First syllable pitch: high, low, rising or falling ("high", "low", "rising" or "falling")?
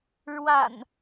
low